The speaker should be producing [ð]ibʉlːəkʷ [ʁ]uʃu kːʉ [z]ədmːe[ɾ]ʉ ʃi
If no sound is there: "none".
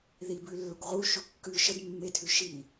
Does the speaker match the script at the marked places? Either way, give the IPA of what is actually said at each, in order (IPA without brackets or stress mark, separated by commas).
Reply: ð, ʁ, ʃ, tʰ